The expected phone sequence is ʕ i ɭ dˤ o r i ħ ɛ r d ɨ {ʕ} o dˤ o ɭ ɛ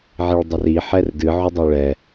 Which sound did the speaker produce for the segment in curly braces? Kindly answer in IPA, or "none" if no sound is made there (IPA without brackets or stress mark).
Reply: ʕ